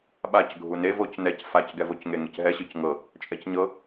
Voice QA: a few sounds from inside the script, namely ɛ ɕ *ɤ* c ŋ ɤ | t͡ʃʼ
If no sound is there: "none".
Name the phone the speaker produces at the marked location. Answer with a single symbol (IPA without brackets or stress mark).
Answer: ɯ